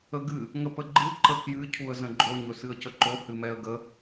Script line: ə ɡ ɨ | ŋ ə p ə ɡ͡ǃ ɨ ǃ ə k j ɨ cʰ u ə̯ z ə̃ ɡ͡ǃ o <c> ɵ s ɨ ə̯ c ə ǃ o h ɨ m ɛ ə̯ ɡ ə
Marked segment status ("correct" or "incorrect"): incorrect